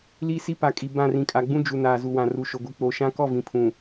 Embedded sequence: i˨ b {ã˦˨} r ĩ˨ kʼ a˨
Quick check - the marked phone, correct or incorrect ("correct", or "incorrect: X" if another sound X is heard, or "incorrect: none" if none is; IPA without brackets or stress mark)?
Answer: correct